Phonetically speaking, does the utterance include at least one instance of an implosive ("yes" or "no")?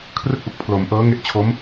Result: no